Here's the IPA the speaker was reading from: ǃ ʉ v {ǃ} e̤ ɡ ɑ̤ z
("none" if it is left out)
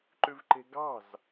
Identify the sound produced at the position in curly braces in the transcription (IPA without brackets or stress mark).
ǃ